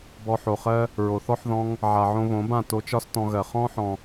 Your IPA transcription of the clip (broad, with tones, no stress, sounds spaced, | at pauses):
b ɔ˧ ħ o˨ χ ɜ˦ | ɹ o˨ θ ɔ˦ ħ ð ɔ̃˧ ŋ | ʕ a˨ ʕ õ˧ β õ˨˦ b ã˦˨ t o˧ t͡ʃ ɒ˦ s t ɔ̃˧ ɣ ɜ˨ χ ɔ̃˧ ħ ɔ̃˨